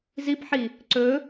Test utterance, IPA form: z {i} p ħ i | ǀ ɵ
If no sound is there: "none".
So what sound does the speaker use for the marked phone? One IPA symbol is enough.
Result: i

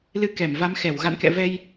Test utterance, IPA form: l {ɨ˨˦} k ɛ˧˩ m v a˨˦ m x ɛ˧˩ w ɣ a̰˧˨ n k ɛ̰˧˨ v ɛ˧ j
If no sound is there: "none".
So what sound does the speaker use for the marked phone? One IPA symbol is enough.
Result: ɨ˧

